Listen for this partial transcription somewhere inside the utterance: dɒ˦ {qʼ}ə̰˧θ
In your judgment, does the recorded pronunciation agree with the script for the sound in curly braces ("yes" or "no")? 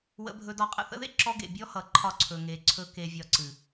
yes